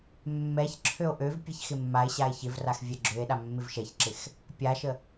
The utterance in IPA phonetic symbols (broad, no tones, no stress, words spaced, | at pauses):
mːɛç ǁʰøo̯ʔøvpʲɛç xɪmːae̯ɕae̯ çɪvrax vʲɛɡ͡ǁøe̯ɗa mːɪvʃɛçǁɪx | pʲaʃə